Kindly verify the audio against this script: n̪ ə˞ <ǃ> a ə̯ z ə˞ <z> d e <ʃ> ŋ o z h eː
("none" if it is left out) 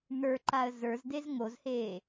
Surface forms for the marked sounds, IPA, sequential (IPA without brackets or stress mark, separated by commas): ǃ, z, z